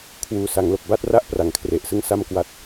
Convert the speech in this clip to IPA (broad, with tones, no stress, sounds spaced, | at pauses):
kʰ w uː˨˩ s a˩˦ ŋ l o˨˩ k̚ b a˥˩ t̚ r a˥˩ ʔ p r a˨˩ ŋ kʰ r e˨˩ ʔ s ɯ˥˩ ŋ s a˥˩ m k w a˦˥ t̚